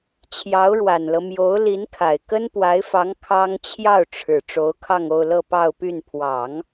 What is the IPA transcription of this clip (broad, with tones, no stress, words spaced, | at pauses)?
t͡ɕʰjɑ˧˥ʊ̯ɻwa˨˩nlɤ˦ mjo˧˥ʊ̯ li˧˥nkʰa˨˩ɪ̯ kə˥npwa˧˥ɪ̯fɑ˧˥ŋ kʰɑ˥ŋ t͡ɕʰjɑ˥˩ʊ̯ʈ͡ʂʰɻ̩˨˩ ʈ͡ʂo˧˥ʊ̯kʰɑ˥˧ŋo˥˧ʊ̯lɤ˥˧ pɑ˥˧ʊ̯py˥˩n pʰwɑ˨˩˦ŋ